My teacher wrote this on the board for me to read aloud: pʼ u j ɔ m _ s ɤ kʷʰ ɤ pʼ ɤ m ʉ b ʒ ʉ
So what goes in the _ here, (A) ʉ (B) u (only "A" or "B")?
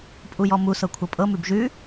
B